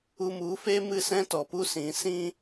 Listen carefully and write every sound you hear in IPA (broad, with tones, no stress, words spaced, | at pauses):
u˧mu˨˦fe˦ mɨ˦˨sɛ̃˦ tɔ˨pu˦sĩ˨˦ sĩ˦